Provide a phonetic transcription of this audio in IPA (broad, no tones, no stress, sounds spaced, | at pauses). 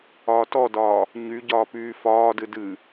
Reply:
ɒː t ɔ d ɒː | ɲ y ɟ ɒː p yː f ɒː d ɨ d ɨ